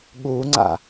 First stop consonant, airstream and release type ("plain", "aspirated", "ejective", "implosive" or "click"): implosive